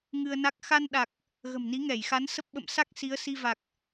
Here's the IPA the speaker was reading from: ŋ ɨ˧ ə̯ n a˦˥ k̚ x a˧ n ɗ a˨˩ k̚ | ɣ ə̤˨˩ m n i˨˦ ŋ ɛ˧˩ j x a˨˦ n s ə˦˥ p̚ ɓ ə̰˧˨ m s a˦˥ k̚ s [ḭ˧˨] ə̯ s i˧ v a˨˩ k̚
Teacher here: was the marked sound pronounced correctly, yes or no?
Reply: no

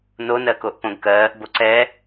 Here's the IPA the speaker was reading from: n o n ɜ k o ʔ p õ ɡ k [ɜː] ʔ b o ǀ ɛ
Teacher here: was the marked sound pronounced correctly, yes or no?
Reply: yes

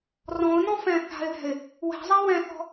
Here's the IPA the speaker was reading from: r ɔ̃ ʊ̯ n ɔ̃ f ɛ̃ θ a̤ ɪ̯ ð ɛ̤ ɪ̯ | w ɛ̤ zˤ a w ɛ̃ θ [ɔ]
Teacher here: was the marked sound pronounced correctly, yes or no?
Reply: no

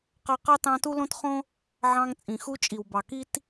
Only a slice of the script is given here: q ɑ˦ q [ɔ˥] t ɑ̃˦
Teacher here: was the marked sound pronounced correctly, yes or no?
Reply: no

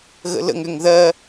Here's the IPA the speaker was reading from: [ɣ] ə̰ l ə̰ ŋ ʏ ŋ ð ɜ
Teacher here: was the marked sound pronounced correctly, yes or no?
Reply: yes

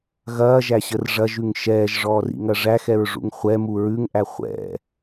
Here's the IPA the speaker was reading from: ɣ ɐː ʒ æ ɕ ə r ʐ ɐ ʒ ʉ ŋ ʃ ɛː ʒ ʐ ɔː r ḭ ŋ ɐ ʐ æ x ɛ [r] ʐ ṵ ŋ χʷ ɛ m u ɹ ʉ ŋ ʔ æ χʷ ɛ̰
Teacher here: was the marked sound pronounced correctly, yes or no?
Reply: no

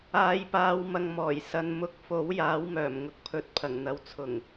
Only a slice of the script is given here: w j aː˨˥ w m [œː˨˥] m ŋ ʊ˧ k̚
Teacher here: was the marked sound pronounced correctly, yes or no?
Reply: no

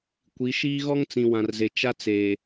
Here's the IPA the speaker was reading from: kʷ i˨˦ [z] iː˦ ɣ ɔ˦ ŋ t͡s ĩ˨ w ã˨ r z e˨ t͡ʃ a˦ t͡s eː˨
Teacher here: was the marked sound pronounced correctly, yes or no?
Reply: no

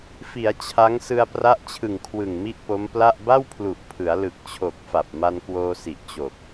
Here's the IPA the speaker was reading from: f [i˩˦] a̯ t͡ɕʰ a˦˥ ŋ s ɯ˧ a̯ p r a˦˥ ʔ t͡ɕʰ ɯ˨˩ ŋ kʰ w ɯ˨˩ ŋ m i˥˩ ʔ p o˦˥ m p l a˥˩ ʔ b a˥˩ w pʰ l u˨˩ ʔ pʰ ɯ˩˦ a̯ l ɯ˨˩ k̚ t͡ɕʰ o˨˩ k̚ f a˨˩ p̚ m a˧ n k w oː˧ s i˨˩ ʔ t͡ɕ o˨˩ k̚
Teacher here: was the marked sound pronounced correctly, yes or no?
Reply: yes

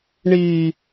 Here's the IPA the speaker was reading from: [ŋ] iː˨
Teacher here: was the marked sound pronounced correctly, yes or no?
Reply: no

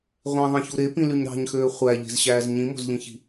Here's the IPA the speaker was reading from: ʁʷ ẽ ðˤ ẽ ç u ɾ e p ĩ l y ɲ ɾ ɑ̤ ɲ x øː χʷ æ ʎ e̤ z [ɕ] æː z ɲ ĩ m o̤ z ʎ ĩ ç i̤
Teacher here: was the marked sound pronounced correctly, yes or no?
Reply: yes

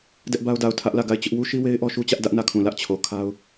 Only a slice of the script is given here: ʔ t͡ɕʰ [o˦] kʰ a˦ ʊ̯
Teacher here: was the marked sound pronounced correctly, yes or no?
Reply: no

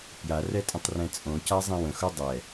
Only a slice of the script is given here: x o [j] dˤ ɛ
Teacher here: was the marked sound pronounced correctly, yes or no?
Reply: no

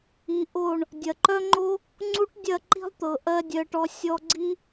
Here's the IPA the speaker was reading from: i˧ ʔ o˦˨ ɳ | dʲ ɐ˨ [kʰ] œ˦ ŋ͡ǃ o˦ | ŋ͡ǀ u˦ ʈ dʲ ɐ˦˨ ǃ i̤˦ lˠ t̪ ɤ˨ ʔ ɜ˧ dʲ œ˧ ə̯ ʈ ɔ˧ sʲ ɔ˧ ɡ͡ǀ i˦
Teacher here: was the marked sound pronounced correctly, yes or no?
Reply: no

